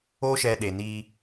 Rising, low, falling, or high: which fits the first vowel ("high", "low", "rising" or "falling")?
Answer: high